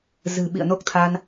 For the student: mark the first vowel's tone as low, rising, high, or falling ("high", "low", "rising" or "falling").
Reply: low